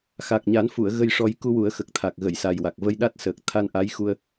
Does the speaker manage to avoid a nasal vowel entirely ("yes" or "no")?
yes